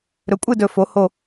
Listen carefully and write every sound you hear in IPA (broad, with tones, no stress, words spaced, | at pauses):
ɾɵ˩˥kʷʼɨ˥˨dɵ˧˩ fo˩˥ ho˧˩